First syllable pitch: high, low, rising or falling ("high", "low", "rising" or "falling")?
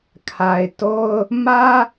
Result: low